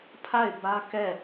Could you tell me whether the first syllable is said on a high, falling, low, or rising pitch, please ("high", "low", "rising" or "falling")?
falling